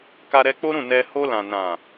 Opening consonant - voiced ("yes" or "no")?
no